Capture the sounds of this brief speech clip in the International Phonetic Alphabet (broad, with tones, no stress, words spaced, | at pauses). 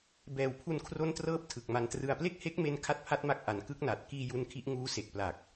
bɛː˨˩wpʰu˧nkʰro˦˥n trɤː˥˩p̚tʰɯ˨˩k̚ma˧ntrɯ˧a̯ ple˥˩k̚he˦˥k̚me˧n kʰa˥˩t̚pʰa˦˥t̚ma˦˥k̚ʔa˩˦n kɯ˦˥k̚na˨˩t̚ kiː˧ ju˧nkʰi˦˥ʔ ŋuː˦˥se˨˩k̚pla˨˩k̚